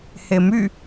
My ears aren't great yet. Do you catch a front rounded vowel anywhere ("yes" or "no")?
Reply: yes